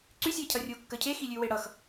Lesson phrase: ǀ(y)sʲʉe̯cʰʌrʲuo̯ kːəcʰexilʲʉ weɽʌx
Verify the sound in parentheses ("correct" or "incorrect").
correct